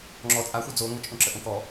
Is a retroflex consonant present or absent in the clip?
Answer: absent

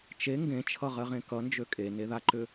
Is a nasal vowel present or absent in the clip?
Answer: present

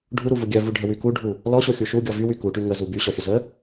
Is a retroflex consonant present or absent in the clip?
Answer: present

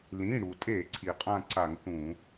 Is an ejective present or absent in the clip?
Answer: present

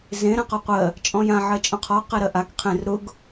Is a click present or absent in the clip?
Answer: absent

